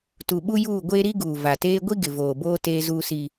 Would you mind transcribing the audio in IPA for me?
t u˨ ɓ u˦ j uː˦˨ ɡʷ eː˦ ɾ i˦ ɡ uː˨ v a˨ t eː˦ ɡʷ i˦ ɡ ɪ˨ v oː˨ b oː˦ t eː˦ z uː˦ s i˦

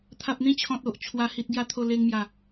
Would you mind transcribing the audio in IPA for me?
t̪ʰ a˨ p̚ n̪ ĩ˥˧ t͡ɕʰ ɔ̃˨ t̚ o˨ ʔ t͡ɕʰ w a˨˩ h i˨ t̚ ɡ j a˨˩ t̪ʰ o˨˩ l e˧ ŋ m j a˨˩

